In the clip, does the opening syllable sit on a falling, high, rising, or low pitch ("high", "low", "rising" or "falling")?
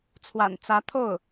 low